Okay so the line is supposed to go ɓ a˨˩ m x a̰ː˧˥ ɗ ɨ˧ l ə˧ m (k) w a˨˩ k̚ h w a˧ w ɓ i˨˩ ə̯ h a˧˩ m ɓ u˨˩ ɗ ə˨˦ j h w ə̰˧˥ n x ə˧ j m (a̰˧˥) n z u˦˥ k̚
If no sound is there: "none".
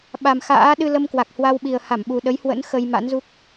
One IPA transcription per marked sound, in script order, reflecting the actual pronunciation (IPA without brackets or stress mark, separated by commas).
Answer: k, a̰˧˥